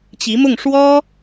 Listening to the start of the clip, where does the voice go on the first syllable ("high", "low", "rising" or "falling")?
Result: rising